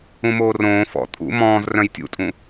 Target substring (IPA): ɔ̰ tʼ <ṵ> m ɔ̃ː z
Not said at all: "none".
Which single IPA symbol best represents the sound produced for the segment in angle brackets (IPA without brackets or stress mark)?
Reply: ṵ